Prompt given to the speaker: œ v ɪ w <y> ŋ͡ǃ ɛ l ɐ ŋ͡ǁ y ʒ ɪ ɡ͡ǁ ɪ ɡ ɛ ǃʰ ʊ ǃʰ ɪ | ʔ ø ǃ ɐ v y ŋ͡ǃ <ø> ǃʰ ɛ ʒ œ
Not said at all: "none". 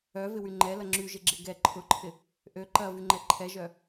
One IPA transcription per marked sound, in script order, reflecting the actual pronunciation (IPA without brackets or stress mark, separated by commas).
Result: y, ɛ